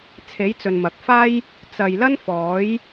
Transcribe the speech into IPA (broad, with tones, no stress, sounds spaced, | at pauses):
t͡sʰ e˨˥ j t͡s ɵ˨ n m ɐ˨ k̚ f aː˥ j | t͡s ɐ˨ j l ɐ˥ n f ɔː˨˥ j